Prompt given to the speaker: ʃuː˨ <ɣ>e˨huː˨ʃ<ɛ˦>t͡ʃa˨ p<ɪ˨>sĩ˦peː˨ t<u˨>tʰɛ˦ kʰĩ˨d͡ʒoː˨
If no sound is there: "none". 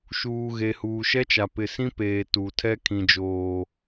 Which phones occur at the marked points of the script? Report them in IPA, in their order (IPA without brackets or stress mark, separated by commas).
ɣ, ɛ˦, ɪ˨, u˨